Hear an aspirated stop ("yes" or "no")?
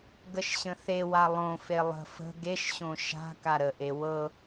no